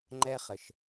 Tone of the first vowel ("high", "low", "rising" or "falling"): high